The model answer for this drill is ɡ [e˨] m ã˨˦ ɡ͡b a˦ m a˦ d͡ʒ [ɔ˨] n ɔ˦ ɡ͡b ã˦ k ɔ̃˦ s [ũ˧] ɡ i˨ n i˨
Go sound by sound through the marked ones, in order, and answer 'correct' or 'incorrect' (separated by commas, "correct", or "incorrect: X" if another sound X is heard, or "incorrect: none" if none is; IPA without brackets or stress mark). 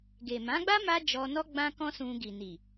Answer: correct, incorrect: ɔ˧, correct